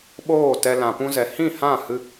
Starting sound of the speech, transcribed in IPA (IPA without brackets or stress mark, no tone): ɓ